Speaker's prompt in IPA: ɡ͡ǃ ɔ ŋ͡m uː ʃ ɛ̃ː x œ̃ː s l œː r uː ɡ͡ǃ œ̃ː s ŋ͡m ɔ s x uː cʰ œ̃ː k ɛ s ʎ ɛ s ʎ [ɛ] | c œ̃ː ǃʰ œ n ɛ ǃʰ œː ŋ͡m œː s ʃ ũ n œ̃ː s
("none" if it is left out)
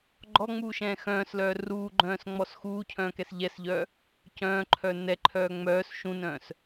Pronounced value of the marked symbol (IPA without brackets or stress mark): œ